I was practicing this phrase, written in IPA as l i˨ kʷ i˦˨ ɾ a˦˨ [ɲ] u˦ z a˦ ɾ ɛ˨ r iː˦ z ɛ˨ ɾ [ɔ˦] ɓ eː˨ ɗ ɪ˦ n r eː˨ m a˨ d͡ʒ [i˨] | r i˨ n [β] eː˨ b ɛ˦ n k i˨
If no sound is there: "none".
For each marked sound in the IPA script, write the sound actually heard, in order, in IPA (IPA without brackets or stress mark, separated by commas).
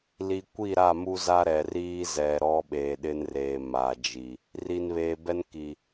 m, ɔ˦, i˨, β